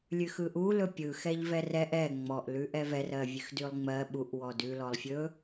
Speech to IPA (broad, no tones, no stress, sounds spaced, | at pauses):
lʲ ʉ x ɯ ʔ u l ɵ pʲ ɯ x ɛ ʎ v ɛ r ɛ ʔ ɛ ŋ͡m ɔ ʔ l ʉ ʔ ɛ v ɛ r ɜ vʲ ʉ x d ʉ lˠ ŋ͡m ɜ ɓ u ʔ w ɔ d ʉ l ɔ lˠ fʲ ɵ